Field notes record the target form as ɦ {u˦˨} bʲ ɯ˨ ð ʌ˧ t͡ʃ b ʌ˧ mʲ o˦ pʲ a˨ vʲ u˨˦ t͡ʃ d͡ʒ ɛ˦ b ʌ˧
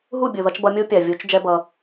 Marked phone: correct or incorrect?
correct